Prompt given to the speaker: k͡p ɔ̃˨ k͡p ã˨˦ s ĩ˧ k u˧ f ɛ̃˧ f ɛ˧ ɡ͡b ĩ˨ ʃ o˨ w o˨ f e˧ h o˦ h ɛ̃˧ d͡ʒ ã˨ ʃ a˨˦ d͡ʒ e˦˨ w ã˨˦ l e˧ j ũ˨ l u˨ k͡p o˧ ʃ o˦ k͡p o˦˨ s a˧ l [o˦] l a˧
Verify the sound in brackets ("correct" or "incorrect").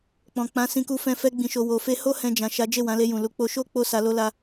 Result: correct